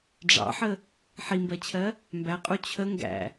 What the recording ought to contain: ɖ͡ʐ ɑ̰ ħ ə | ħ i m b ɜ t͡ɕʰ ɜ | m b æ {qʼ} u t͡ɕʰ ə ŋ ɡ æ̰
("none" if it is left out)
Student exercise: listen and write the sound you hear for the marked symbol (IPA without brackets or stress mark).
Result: qʼ